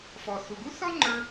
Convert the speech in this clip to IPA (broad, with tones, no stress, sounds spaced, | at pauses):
f ɔ˩ θ u˩ ɡ u˥ θ ɔ˥ ŋ͡ǃ ə˞˧